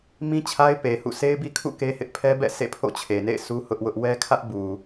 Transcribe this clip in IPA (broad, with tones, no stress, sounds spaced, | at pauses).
m ĩ˦ t͡ɕʰ a˦ ɪ̯ p e˨ h ṵ˦˨ s e˦ ɪ̯ b i˦ kʰ ṵ˦˨ k e˦ h ɪ˦ ʔ pʰ ɛ˦ b ɛ̰˦˨ s ḛ˦˨ pʰ o̰˦˨ t͡ɕʰ e˨ n ḛ˦˨ ɪ̯ s u˦ h ʊ˦ ʔ w ʊ˦ ʔ w ɛ˦ kʰ ä˦ ʔ b u˨